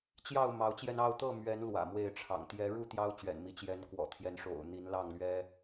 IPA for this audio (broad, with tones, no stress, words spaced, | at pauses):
t͡ɕjɑ˥˨ʊ̯ mɑ˨˦ʊ̯t͡ɕjɛ˧nɑ˥˨ʊ̯ t̪ɤ˥˨mɥɛ˨˦n lwä̰˨˩mwe˥˨ɪ̯ʈ͡ʂʰɑ̰˨˩ŋ t̪jɛ˨˦ɻu˥˨ t̪jɑ˦ʊ̯t͡ɕɥɛ̰˨˩nmi˨˦ t͡ɕjɛ˨˦nkwɔ̰˨˩t̪ʰjɛ˨˦nʂo̰˨˩ʊ̯ n̪i˨˦nlɑ˥˨ŋlɥɛ˦